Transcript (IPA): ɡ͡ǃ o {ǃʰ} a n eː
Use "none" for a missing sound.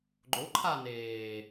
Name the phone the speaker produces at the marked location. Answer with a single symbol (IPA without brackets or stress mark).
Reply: ǃʰ